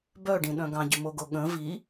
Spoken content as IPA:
b œ ɖ ĩ ɗ œ̃ ɡ ɑ̃ ɟ ʉ m o ɡ o ɠ ə̃ v i

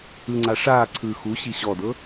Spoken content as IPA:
ɯ ŋ͡ǀ a ʂ aː ǀʰ ɯ x u ɕ i ɕ ɔ d ɤ

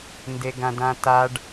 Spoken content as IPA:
n d e ɡ ã d ã t a ɖ

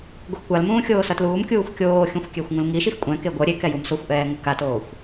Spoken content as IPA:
ɡʷ ʌ x kʷ a l m ũː xʲ oː s ʌ t l uː m kʲ uː xʷ kʲ oː xʲ ũ xʷ kʲ e xʷ ŋ ũ l ŋ i ʃ i x kʷʼ ɛ̃ k e ɡʷ ʌ ɾʲ e k ɛ j u m s o xʷ ʔ ɛː ŋ ɯ k a t oː xʷ

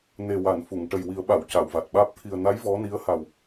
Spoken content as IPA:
n e˨˩ w a˨˩˨ n f u˨˩˨ ŋ ʈ ə˨˩ j w i˨˩˦ ə̯ ɓ a˨˩˨ w c a˨˩˨ w v a˨˩ t̚ ɓ aː˦˥ p̚ t̪ʰ i˨˩ ə̯ n a˧˥ j v ɔ˧˥ n i˧˥ ə̯ h a˨˩ w

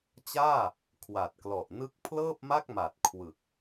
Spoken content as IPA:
t͡ɕ aː˥˩ | kʰ w a˨˩ t̚ k l ɔ˨˩ ʔ n ɯ˦˥ k̚ pʰ l ɤː˥˩ p̚ m a˥˩ k̚ m a˨˩ t̚ kʰ w ɯ˨˩ k̚

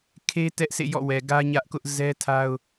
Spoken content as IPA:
kʰ e˦ t ɛ˦ ʔ sʰ ḛ˦˨ j ɔ̰˦˨ w ɛ˨ ɡ ä˦ ɲ ä˦ ʔ k ʊ˦ ʔ z ɛ˦ tʰ a˦ ʊ̯

